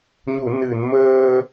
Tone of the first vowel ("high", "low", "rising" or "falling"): low